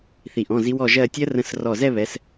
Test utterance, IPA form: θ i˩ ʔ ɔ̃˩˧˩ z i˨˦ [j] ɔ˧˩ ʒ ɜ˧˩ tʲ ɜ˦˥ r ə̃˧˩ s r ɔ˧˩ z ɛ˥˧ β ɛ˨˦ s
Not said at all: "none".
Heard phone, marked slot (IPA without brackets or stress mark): w